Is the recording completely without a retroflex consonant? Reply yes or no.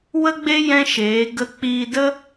yes